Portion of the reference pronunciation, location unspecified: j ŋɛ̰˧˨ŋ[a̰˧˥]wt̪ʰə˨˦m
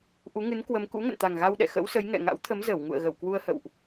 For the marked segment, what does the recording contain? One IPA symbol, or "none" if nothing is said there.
a̰˧˥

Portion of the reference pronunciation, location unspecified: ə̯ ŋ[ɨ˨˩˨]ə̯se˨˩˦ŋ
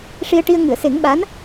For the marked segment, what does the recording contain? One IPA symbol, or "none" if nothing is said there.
ɨ˨˩˨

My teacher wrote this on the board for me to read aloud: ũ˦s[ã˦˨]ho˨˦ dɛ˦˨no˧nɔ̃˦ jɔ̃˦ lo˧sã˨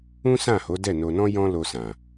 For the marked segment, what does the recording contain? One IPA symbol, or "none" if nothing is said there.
ã˦˨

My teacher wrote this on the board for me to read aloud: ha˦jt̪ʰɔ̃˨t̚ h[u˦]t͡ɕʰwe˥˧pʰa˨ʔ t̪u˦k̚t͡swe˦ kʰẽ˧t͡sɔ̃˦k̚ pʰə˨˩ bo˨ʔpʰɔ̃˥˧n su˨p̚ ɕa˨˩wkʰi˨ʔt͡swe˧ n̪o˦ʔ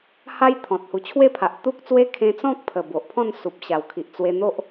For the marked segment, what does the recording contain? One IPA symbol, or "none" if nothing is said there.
u˨˩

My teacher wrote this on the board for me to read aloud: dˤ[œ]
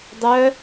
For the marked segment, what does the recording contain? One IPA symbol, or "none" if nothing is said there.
œ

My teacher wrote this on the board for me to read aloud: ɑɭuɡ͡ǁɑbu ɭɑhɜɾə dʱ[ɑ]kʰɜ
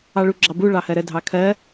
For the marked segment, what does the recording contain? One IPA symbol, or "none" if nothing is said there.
ɑ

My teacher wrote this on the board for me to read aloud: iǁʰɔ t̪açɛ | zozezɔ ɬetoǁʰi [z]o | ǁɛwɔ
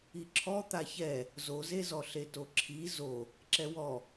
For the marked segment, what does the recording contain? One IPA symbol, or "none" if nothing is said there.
z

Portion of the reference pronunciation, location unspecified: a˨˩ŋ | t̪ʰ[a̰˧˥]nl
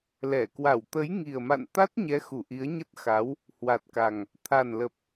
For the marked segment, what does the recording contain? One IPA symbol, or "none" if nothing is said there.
a˨˩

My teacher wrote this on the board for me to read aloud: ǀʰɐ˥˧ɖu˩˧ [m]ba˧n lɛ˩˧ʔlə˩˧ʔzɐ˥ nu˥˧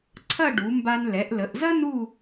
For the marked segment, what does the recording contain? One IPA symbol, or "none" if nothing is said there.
m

